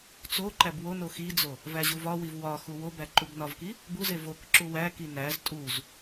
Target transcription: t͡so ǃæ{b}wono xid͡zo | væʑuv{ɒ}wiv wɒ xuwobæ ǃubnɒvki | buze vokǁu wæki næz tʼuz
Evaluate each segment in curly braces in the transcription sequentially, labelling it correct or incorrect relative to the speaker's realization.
correct, correct

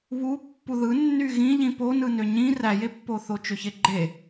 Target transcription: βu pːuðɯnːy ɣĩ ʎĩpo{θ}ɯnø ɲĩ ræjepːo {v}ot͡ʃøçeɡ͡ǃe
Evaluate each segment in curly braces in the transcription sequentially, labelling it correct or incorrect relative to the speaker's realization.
incorrect: n, incorrect: θ

